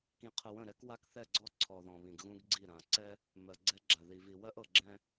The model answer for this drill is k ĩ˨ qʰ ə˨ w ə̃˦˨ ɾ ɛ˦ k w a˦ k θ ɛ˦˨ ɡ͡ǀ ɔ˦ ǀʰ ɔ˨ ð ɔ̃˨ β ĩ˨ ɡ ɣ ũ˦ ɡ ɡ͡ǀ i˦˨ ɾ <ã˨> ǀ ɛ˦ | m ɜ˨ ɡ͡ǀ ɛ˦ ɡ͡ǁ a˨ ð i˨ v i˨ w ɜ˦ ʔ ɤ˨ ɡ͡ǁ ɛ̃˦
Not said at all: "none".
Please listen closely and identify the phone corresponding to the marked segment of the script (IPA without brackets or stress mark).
ã˨